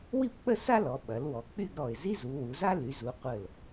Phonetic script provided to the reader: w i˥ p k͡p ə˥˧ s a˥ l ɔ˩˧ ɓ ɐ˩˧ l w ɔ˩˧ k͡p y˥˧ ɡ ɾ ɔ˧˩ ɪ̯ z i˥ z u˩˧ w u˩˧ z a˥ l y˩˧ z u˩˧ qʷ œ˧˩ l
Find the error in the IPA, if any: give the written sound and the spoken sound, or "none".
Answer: œ˧˩ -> ə˧˩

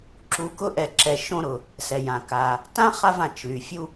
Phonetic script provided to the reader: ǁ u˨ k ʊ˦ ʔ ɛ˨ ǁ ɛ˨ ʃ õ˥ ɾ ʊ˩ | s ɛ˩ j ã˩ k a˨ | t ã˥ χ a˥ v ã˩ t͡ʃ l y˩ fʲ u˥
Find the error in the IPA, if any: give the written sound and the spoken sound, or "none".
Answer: õ˥ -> õ˦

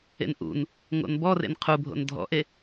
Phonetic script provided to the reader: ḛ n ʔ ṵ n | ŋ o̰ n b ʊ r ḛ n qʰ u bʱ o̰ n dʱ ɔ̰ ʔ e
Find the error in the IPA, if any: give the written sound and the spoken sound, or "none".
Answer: ʊ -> ɔ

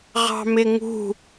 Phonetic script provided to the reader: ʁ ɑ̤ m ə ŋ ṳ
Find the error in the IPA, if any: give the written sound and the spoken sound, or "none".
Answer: ə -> ɪ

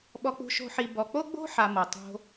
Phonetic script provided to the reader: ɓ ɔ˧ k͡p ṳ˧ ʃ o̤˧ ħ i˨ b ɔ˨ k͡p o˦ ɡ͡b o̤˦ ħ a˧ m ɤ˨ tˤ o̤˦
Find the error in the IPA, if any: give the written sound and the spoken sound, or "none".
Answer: none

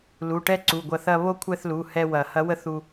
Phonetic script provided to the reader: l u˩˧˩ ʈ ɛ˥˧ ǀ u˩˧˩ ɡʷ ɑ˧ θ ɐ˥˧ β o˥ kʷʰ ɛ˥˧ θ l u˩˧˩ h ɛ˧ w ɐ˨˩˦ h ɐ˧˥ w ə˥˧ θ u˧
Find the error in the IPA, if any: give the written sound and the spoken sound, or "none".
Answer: ɑ˧ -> ɐ˧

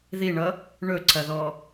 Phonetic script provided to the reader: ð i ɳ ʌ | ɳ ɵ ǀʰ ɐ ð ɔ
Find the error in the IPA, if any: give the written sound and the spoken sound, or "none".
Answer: none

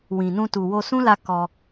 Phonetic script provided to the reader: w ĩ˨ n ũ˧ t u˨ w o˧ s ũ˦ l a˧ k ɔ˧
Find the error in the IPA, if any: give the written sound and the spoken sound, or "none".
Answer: none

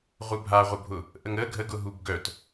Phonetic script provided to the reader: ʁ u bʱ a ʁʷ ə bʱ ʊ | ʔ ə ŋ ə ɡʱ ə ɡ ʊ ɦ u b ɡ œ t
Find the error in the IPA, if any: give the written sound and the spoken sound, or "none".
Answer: none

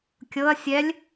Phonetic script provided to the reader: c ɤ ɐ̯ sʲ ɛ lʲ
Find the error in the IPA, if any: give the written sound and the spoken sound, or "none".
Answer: c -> kʲ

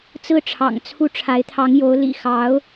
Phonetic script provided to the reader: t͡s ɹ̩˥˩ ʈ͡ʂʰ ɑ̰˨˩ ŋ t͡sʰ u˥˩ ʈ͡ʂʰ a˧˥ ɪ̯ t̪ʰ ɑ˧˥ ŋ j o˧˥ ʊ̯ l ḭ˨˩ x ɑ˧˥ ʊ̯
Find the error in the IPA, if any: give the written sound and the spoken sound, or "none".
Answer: none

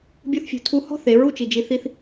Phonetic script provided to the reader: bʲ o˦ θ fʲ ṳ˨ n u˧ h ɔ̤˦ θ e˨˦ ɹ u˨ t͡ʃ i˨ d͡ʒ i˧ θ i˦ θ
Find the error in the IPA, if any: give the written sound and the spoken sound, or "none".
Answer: n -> tʰ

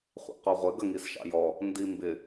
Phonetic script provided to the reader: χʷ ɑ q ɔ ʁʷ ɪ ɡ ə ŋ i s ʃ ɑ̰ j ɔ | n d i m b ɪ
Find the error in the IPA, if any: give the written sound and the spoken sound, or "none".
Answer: ɑ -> ɑ̰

